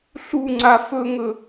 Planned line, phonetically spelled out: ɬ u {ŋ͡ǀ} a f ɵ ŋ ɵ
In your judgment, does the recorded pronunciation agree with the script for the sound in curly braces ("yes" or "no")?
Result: yes